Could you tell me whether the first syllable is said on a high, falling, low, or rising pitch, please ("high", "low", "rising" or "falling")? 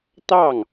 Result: falling